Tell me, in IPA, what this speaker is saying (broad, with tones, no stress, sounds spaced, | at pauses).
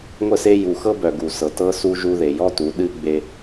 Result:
ŋʷ ə˦˨ s e˦ j u˨ x ɤ˦ b œ˨ ɡ u˨ s ɤ˨ t ɤ˦ s u˦ ʒ u˦ ð e˨ j ɔ˦ t u˨˦ ɗ ɨ˦ ɡ͡b e˦